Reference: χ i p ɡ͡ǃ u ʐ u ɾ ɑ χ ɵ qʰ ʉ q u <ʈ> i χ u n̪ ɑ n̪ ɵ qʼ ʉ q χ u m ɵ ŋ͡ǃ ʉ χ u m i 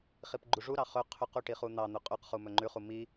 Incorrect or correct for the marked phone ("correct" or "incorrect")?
correct